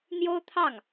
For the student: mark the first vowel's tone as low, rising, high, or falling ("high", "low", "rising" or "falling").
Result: high